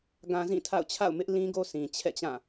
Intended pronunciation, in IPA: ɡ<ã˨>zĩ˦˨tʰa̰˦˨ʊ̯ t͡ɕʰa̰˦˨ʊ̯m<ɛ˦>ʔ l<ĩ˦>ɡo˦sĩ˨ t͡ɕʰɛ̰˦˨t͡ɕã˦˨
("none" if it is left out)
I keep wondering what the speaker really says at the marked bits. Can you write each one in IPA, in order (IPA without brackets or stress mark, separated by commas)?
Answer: ã˦, ɪ˦, ĩ˦